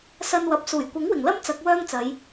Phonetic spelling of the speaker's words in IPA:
sɐ˧nwɐ˨p̚ suː˨˩j kʷɐ˨˥ŋwɪ˨˩ŋlɐ˥m t͡sɐ˨˥k̚wœː˥ŋt͡sɐ˨˧j

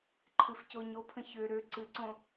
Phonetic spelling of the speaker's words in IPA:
ǃʰɨfcoɲopʰə̃ çø ɾø ǀɨǀõ

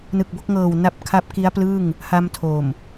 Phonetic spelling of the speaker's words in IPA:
nɯ˨˩k̚bo˥˩k̚ŋɤː˨˩w na˦˥p̚ kʰa˦˥p̚ki˦˥a̯plɯ˥˩ŋ | ha˧m tʰo˨˩m

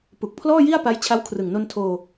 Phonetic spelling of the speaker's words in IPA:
pu˨˩k̚pʰlɔː˥˩ji˥˩a̯pa˦˥j t͡ɕʰa˦˥wkʰrɯ˨˩ŋno˧n tʰoː˧

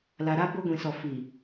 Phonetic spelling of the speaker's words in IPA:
la˨ɾa˦ bo˦ɡʷĩ˨sɔ˨ fi˨

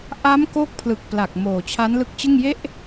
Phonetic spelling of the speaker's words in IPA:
ʔa˦˥mko˦˥k̚ pʰlɯ˨˩k̚pla˨˩k̚ moː˨˩t͡ɕʰa˦˥nlɯ˦˥k̚t͡ɕɯ˥˩ŋ je˥˩ʔ

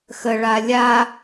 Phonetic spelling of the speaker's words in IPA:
xə ɭalʲa

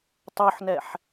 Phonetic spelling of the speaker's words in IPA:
tˤoħnɛħ

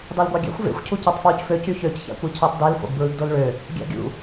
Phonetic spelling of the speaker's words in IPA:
dɑlɡʷɑɡʲæ̰xʷ vḛxʷ cʰucøtˤfwucfø cyçøc çæ̰kʷicʰøtˤdel fo̰ɡbɹɯɡdolɭø | ɡʲæ̰ɡʲṵ

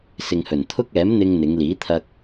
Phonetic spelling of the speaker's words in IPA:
sɪ˨ŋhɵ˨˩nt̪ʰʊ˥k̚ ɛː˨˥mn̪ɪ˧ŋ n̪ɪ˨˧ŋliː˨˥t̪ʰɐ˧k̚

